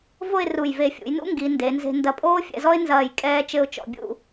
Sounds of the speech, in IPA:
v o˥˧ ɪ̯ r u˧˩ j v e˧˩ fʲ ṵ˩˧ j n ṵ˥ ŋ ɡ i˩˧ n d e˩˧ n z e̤˧ n d ɐ˧ pʼ oː˥ fʲ ɛ̰˧ z ɔ˥ ɪ̯ n z ɐː˧˩ j kʼ ɛː˧ t͡ʃ ɘ˥ ʊ̯ t͡ʃ ɔ̰˧ bʲ ṵ˥˧

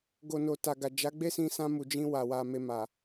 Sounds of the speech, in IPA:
ɡ o˨ n o˨ t a˨ ɡ a˨ d͡ʒ a˨˦ ɡ͡b e˦ s ĩ˧ s ã˧ m u˨ d͡ʒ ĩ˧ w a˨ w a˧ m e˧ m a˨

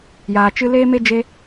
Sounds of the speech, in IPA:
j aː˨ t͡ʃ ɨ˧ l eː˦ m e˦ d͡ʒ e˧

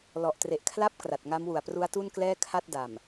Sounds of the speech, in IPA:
l ɔ˨˩ ʔ t r e˨˩ ʔ kʰ l a˥˩ p̚ k r a˨˩ t̚ ŋ a˦˥ m w u˨˩ a̯ p r u˦˥ a̯ t u˥˩ n k l ɛː˥˩ kʰ a˥˩ t̚ d a˨˩ m

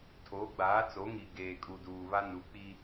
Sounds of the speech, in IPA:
tʰ oː˨˦ ɡ͡b aː˨˦ t͡s o˨˦ ŋ i˨ ɡ eː˨ kʼ u˨ d uː˨ β a˦ n u˨˦ k͡p iː˦

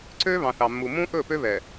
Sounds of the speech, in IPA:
ǀ ø˦ β ɑ̃˨ θ ɑ˨ mː u˨ m ũ˦ ʔ ɵ˦˨ p ø˦ β ɛ˨

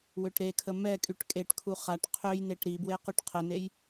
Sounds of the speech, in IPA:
w ø ʈ ɾ e kʰ ə m ɛ kʼ y ʈ kʼ e ʈ kʰ u χ a ʈ qʰ ø j n e ʈ ɾ i b w e q y ʈ qʰ ə n e j

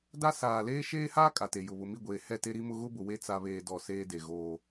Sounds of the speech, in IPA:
d a˦ s aː˨ l eː˦ ʃ eː˦ h aː˦ kʼ a˨ t e˨ j ʊ˨ β ʊ˨ m i˦˨ ɡʷ eː˨ h ɛ˦˨ t e˦ ɾ i˦ m ʊ˦ ɣ ʊ˦ b ʊ˨ w e˦ t͡s a˦ β eː˦ d ɔ˦˨ s eː˦ d e˨ ɣ oː˦

